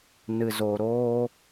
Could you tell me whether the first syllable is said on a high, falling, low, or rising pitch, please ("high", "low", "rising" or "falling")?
low